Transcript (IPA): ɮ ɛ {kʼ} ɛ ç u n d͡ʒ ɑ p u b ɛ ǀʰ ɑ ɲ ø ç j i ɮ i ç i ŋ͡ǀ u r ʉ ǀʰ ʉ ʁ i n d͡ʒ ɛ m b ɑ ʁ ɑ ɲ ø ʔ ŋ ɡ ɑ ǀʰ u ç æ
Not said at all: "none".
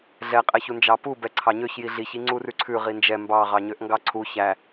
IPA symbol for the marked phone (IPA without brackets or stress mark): qʼ